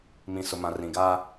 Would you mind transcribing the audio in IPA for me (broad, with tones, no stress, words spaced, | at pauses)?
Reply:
mĩ˨sʊ˨mã˨ rĩ˨ɡa˦